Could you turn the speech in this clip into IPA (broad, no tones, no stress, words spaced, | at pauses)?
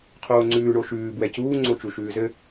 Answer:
qʰoːŋ͡ǀʉː ɳoʃʉː bwɛcuː ŋ͡ǀot͡ʃuʃʉːzɘ